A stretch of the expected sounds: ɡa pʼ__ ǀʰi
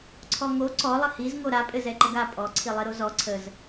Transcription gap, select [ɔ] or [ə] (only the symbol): ɔ